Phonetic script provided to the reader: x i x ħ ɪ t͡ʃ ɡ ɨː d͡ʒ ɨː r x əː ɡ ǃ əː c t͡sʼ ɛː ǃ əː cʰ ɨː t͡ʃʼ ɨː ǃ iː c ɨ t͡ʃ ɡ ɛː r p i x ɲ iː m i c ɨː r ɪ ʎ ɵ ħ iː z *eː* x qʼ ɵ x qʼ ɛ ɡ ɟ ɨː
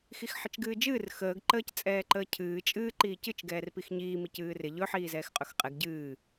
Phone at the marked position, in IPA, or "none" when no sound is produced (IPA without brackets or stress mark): ɛː